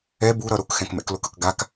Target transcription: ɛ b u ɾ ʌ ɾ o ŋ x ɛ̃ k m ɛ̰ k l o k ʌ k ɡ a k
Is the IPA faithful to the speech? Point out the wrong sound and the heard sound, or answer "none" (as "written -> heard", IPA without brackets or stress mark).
ŋ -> k